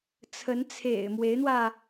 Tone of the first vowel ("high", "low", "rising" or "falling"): rising